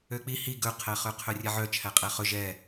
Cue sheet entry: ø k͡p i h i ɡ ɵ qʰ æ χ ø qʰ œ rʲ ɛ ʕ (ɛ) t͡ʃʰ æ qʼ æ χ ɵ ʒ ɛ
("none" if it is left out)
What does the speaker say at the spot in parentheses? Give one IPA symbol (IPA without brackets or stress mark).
œ